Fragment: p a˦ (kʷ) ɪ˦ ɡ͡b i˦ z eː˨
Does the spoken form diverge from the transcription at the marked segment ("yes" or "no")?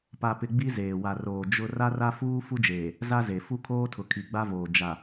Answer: yes